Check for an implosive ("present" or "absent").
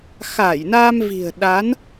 present